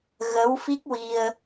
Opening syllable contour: rising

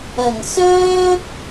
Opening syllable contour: low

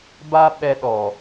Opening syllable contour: high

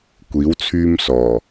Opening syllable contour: rising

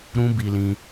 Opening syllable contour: high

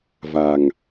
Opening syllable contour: low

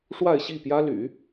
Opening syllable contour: falling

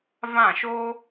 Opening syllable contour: falling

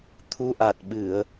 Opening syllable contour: rising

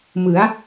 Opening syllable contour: rising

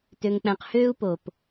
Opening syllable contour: low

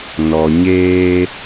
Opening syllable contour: low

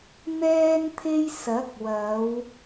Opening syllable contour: high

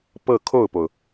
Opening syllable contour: falling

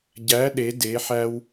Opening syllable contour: rising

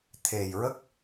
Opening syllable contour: low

